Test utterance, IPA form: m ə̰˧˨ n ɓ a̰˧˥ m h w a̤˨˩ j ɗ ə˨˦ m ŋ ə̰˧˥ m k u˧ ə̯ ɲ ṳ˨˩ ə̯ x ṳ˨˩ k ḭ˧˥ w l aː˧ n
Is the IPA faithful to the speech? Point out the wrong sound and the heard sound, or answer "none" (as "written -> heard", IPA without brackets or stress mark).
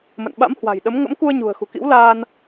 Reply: none